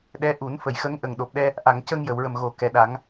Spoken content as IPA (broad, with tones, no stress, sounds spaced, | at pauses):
ɗ ɛ˧˥ ʔ u˨˩˦ n f ə˨˩˨ j x ə˧˥ ŋ ʔ ə˨˩ ŋ ɗ o˨˩ p̚ ɗ ɛ˧ | ʔ a˨˩˨ ŋ c ə˧ ŋ j ə˨˩˨ w ɹ ə˨˩ m ɣ o˨˩˨ k ɛ˨˩˨ ɗ a˨˩˦ ŋ